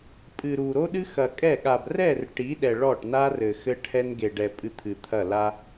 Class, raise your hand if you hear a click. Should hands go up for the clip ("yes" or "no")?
no